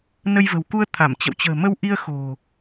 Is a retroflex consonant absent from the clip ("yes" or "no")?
yes